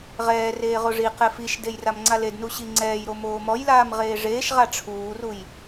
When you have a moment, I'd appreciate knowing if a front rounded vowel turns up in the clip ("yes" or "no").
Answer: no